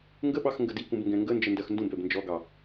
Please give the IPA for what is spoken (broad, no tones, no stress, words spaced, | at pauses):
ŋɡəɓɑx ŋɡədikũb ŋɡɛ̃ŋɡənd͡ʒə ndɜxndũbɛb nd͡ʒɔɡɑ